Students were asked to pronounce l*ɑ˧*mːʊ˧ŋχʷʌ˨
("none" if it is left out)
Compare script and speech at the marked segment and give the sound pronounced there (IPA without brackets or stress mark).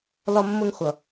ɒ˧